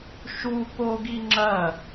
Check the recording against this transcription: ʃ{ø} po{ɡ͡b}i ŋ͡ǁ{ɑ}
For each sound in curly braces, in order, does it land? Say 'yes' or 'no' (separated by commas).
no, no, no